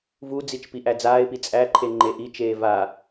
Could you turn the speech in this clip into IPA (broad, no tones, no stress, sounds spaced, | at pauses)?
v u d͡z i t͡ʃ p i ʔ æ d͡z aː ɪ̯ p i t͡sʼ æ ǃʰ e ŋ͡ǃ e ʔ i t͡ʃ eː v a